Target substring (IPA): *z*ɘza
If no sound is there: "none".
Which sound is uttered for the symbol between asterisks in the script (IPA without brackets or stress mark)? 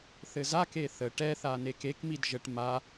θ